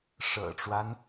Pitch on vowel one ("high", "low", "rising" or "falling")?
low